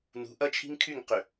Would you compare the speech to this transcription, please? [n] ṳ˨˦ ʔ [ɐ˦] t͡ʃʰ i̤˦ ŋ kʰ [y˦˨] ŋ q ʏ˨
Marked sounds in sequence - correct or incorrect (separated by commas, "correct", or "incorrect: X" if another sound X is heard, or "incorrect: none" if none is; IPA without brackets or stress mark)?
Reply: correct, correct, correct